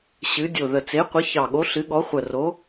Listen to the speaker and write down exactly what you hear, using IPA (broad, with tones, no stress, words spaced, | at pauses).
ɕɨ˨˦ dʲo˨˩ðə˨˩t͡se˨˦qʷə˨˦ çɑ˨˩ɠo˨˦ɬɨ˨˦ɠɔ˨˦ χʷə˨˩ro˨˦